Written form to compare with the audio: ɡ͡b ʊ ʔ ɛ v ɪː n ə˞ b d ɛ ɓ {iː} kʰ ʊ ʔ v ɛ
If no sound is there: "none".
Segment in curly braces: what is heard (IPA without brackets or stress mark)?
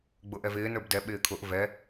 ɪː